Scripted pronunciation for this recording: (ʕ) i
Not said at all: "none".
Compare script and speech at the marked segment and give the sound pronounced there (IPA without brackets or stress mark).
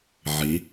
ʕ